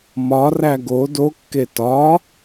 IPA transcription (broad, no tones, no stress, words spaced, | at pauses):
mɒræ ɡo dokːe tɒ